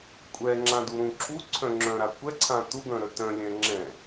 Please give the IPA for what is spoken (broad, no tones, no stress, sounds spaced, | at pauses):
kʷʼ ɛ ŋ͡ǁ ã d u ɾ ũ ǁʰ u ǀʰ œ̃ ŋ͡ǁ œ̃ ɾ a kʷ ɛ ǀʰ ã t u ɡ œ̃ ɾ œ t œ̃ lʲ ɛ̃ ŋ͡ǁ ɛ̃